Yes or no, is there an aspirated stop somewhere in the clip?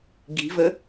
no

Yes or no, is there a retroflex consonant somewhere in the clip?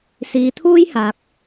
no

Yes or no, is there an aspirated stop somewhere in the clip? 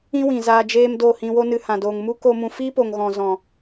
no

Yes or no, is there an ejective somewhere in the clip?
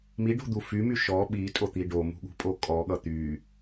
yes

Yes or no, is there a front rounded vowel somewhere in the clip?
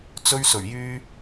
yes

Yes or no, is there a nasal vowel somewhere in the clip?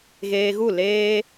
no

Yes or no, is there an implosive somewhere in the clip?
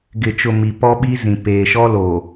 yes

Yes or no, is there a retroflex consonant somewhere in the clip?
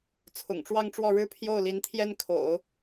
yes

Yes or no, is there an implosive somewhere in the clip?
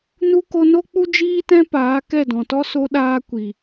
yes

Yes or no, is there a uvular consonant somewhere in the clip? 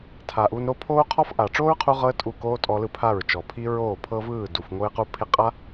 yes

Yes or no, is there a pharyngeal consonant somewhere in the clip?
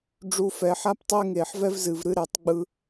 yes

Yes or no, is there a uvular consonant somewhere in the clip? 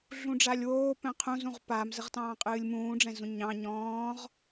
yes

